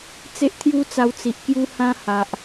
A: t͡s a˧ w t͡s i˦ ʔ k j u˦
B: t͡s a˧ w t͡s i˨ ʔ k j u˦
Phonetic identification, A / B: B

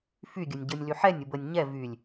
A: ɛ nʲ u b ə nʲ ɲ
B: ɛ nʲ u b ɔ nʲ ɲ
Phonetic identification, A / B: A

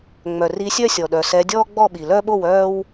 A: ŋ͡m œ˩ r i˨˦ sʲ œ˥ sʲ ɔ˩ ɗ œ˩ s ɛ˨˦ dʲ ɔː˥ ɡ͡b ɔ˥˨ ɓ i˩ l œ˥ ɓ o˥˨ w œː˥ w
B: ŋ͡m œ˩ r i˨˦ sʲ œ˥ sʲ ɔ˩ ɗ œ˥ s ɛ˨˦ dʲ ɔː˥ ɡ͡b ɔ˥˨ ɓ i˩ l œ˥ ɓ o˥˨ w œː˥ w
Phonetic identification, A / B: A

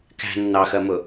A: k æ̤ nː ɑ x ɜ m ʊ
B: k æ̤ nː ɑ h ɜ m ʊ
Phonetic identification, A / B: A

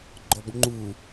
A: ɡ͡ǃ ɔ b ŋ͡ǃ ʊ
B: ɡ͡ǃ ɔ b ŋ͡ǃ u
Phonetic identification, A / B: B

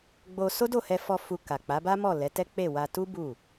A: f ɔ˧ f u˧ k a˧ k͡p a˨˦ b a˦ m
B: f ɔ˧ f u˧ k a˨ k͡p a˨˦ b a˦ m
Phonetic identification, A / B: B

